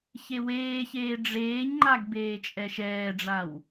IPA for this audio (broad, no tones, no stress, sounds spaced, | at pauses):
ç e w eː ç eː ɖ͡ʐ eː ɲ ŋ͡ǃ a ɡ b eː t͡ʃʼ ɛ ʃ ɛː ɖ͡ʐ a w